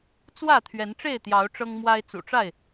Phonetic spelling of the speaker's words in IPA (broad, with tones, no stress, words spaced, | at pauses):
t͡swä˥˨t̪ʰɥɛ˨˦n ʈ͡ʂe˥˨ɪ̯t̪jɑ˨˦ʊ̯ ʈ͡ʂɤ˦ŋmwa˦ɪ̯ t͡sṵ˨˩ʈ͡ʂa˥˨ɪ̯